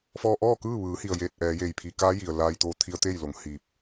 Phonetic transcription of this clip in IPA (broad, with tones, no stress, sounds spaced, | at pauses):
f ɔː˧ ʔ ɔː˥˨ k ɯː˥˨ ʋ ɯː˩˧ h i˩ ə̯ j eː˧˩ t̚ ʔ ɛː˩˧ j eː˩ j pʰ iː˩˧ k aː˧˥ j i˩ ə̯ l aː˧ j t̪ oː˧ t̪ʰ i˧ ə̯ t̪ eː˥˨ j l o˩˧ ŋ h iː˧ p̚